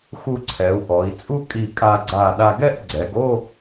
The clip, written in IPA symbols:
xu˧ǀʰɛ˩˧u̯ ʔɔ˩˧i̯ t͡sʼu˥ kʼi˧˩ kʼa˧ɡ͡ǀa˧˩ ɗa˧ɡɛ˥˧ʔɡ͡ǀɛ˩˧ɡ o˥˧

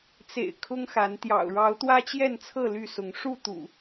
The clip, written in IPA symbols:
t͡sḛ˨˩ɪ̯ kʰʊ˦ŋxa˨˦n t̪jɑ̰˨˩ʊ̯ɻɑ˨˦ʊ̯ t̪wä˦t͡ɕjɛ˥˨nt͡sʰɤ˥˨ ly˥˨sʊ˨˦ŋ ʂu˥˨t̪ṵ˨˩

